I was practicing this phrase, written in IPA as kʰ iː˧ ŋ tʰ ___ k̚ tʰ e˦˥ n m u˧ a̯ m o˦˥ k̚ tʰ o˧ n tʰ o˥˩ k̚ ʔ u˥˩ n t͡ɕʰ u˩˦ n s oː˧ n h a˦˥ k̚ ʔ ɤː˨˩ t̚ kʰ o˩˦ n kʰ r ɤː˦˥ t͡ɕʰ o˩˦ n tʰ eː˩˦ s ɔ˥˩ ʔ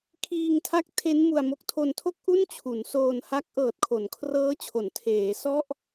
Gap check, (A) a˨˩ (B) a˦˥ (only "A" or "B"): B